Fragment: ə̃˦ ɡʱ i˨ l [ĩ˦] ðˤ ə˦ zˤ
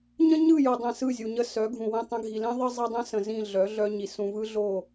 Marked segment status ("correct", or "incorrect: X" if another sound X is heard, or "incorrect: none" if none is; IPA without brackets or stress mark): correct